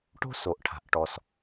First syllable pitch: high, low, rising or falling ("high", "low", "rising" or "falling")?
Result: high